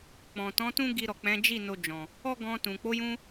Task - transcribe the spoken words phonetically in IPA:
k͡p ɔ̃˨ t ɔ̃˨˦ t ũ˦ ɡ i˧ ɾ ɔ˨ k͡p ɛ̃˨˦ d͡ʒ i˦˨ n o˧ d͡ʒ ɔ̃˨ | ɔ˦ ɡ ɔ̃˧ t ũ˨ k͡p o˨˦ j ũ˧

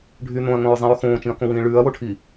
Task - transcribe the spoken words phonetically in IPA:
ɖʱ y n õ ɐ̯ ŋ õ ɹ zˤ ĩ ɹ x õː t͡ʃ ĩ ɐ̯ k õ w ĩː ɭ ʉː ɐ̯ w o ʈʰ i

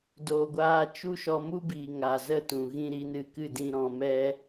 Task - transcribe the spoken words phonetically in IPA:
d oː˨ ɡʷ aː˧ t͡ʃ u˦ ʃ ɔ˧ m u˦ b iː˨ ŋ aː˨ z ə˦˨ t ũ˨ ɣ ĩ˦ ɾ i˨˦ n ɨ˧ k ɨ˦˨ d ĩ˦ ɾ ɔ̃˧ m ɛ˦

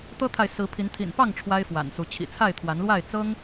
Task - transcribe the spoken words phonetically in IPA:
t̪ ɤ˦ t̪ʰ a˨ ɪ̯ s ɹ̩˨˦ pʰ i˨˦ n t̪ʰ ḭ˨˩ n p ɑ˥˨ ŋ ʈ͡ʂʰ w a˦ ɪ̯ f w a̰˨˩ n s u˨˦ t͡ɕʰ ḭ˨˩ t͡sʰ a˥˨ ɪ̯ t̪ʰ w a˨˦ n l w a˥˨ ɪ̯ t͡s ɤ˦ ŋ

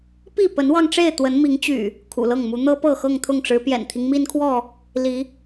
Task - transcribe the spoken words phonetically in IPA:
p i˥˨ p ə˨˦ n w ɑ˧ ŋ ʈ͡ʂ e˥˨ ɪ̯ t̪ w ə˨˦ n m i˨˦ ŋ t͡ɕ y̰˨˩ | kʰ ṵ˨˩ l ɤ˥˨ ŋ m u˨˦ n̪ ɤ˦ p ɤ˥˨ x ɤ˥˨ ŋ t̪ʰ ʊ˥˨ ŋ ʈ͡ʂ ɻ̩˨˦ p j ɛ̰˨˩ n t̪ʰ i˦ ŋ m i˦ n kʰ w ɔ˥˨ | l i˨˦

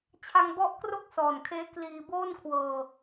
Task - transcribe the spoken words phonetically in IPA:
t͡ɕʰ a˧ ŋ b ɔ˦˥ ʔ k r o˥˩ k̚ s ɔː˨˩ n kʰ eː˦˥ k l iː˧ b oː˥˩ n kʰ w ɤː˧

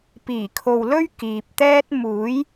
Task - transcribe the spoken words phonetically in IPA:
p iː˨˩ kʰ o˨ w l ɵ˥ ɥ k iː˨ p̚ t̪ ɛː˥ t̚ m uː˨˥ j

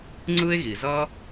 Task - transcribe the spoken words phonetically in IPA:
ŋ͡ǀ ɯ˥ e̯ ɣ i˩ z ʌ˥

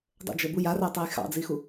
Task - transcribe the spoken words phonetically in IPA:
dˤ ə̰ d͡ʒ ə b u j a r æ tˤ æ j x ɑ̰ d͡z i x u

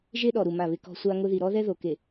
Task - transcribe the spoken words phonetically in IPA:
ʒ e˦ ɗ ɔ˨ ɾ u˨ m a˦˨ β ɪ˦ k ɔ̤˦ sʷ a˦ ŋ ʊ˦ ð i˨ ɾ ɔ˦ ð ɛ˦ ð o˨ k e˨

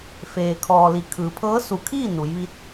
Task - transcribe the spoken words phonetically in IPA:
f eː˩ kʰ ɔː˩ l i˩˧ kʰ ɯː˩ pʰ ɤː˧˥ s u˧˩ kʰ iː˥˨ n u˩˧ j ʋ i˧˥ t̚

